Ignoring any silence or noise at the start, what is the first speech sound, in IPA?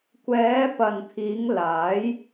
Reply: kʷ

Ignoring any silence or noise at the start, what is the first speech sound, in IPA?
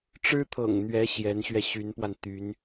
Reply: ʈ͡ʂ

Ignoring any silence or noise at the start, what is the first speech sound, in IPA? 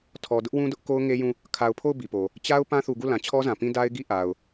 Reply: tʰ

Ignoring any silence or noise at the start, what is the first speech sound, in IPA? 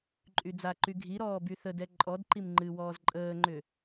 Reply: ǃʼ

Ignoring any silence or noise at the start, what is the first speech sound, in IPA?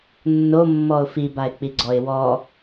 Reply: nː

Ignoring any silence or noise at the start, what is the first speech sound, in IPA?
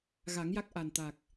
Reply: ɣ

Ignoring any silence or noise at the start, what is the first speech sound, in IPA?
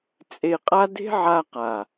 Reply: t͡sʼ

